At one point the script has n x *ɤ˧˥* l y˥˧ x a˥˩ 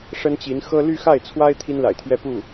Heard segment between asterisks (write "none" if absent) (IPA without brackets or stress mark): ɤ˥